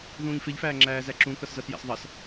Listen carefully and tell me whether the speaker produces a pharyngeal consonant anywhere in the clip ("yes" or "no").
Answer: no